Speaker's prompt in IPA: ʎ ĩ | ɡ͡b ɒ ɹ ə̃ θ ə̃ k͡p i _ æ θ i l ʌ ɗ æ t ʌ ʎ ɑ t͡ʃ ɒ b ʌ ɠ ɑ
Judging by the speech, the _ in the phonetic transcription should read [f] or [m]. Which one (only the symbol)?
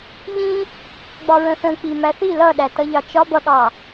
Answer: m